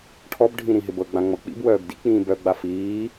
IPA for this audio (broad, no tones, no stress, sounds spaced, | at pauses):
ʈʰ ɔ b ɖʱ ĩ ɾ ĩ ɦ ɪ b ɤ ɡ͡b ã ŋ͡m ɤ k͡p ḭ b w œː b d ḭ k͡p ĩː b œ ɡ͡b a f iː